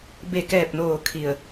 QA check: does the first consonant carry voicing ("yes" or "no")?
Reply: yes